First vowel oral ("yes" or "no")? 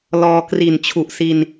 yes